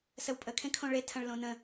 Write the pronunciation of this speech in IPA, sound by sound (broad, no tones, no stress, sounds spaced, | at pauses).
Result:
s ə w pʼ ə kʰ ẽ kʰ õ ɭ e tʰ ɐ̃ ɭ l õ n ə̃